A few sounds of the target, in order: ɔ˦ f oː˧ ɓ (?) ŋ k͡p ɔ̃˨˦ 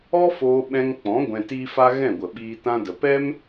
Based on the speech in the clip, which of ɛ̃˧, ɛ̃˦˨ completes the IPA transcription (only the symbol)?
ɛ̃˧